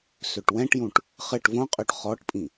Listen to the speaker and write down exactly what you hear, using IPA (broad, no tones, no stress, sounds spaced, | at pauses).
s ø ʈ w ɛ̃ ʈ j ũ ʈ | χ ɘ ʈ v õ qʼ ø ʈ χ ɔ ʈ pʼ ĩ